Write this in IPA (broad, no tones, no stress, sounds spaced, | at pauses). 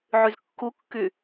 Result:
ʕ y z kː u kː y